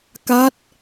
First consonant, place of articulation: velar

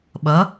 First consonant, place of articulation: labial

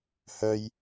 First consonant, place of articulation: glottal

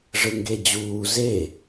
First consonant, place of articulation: retroflex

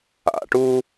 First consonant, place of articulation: retroflex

